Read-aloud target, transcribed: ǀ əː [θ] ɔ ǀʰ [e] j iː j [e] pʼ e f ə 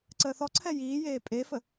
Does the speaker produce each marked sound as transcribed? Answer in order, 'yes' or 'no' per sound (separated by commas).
yes, no, no